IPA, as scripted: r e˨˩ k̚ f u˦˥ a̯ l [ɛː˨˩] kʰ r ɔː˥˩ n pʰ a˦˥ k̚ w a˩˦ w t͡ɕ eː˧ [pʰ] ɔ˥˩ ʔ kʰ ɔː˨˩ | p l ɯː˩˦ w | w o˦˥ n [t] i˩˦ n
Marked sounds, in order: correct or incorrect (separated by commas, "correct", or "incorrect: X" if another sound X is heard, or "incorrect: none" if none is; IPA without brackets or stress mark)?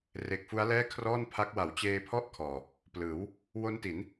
incorrect: ɛː˥˩, correct, correct